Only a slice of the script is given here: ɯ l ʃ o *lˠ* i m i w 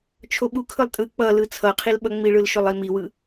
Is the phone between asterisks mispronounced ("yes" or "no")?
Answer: no